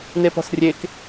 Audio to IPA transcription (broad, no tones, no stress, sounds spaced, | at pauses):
n e p ɔ̤ s rʲ e k